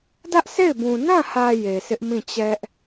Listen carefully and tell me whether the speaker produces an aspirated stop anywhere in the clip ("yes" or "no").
no